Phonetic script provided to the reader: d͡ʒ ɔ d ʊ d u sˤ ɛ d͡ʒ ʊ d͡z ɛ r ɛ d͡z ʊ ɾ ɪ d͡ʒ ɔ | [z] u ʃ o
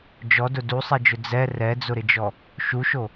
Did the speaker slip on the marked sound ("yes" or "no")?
yes